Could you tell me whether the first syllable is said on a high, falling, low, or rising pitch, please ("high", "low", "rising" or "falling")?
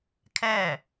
falling